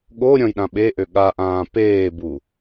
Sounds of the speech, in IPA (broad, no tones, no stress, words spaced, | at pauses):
ɠo ɾʲɔ̃jɗãɓeʔø ɠaʔãː peːbu